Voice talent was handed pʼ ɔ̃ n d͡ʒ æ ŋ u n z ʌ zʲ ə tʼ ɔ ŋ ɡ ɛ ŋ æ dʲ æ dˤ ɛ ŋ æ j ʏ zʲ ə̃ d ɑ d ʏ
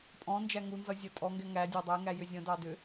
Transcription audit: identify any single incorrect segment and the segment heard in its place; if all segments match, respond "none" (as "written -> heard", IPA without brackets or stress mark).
none